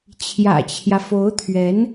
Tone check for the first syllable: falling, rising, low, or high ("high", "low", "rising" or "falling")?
low